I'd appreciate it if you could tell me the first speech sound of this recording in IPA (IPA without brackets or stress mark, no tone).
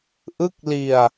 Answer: ʔ